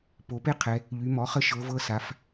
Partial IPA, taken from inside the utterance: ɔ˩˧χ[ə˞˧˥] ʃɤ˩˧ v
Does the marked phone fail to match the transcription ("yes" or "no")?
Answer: yes